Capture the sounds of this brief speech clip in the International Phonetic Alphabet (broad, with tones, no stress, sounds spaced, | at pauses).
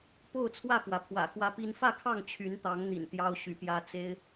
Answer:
p o˥˨ ʊ̯ t͡sʰ w ä˥˨ x w ä˩ pʰ w ä̰˨˩ x w ä˦ p i˦ n f ä˥˨ kʰ ɑ˥˨ ŋ t͡ɕʰ y˨˦ n t̪ ɑ˨˦ ŋ n̪ ḭ˨˩ n t̪ j ɑ˦ ʊ̯ ɕ y˨˦ p j ä˦ t͡s e˦ ɪ̯